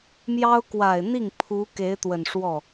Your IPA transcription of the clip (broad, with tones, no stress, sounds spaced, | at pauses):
m j ɑ˥ ʊ̯ k w a˨˩ ɪ̯ n̪ i˥˩ ŋ pʰ u˧˥ k e˧˥ ɪ̯ t̪ w ə˨˩ n ʂ w ɔ˥˩